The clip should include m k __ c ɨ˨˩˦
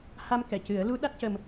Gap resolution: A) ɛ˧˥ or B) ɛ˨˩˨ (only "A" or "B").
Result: B